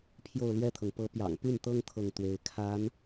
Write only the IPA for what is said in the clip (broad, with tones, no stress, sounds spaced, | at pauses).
pʰ j o˥˧ ʊ̯ l ɥ ɛ˥˩ t̪ʰ ɤ˩ ŋ p ɤ˧˥ p j ɑ̰˨˩ ŋ p y˥˩ n t̪ ɤ˥ ŋ t̪ʰ ɤ˥˩ ŋ t̪ w e˧˥ ɪ̯ kʰ a˧˥ n